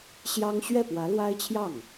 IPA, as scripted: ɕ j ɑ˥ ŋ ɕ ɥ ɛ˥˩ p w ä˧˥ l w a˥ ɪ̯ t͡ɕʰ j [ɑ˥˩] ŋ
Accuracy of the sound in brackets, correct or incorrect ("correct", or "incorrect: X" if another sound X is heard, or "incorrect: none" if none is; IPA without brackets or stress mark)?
correct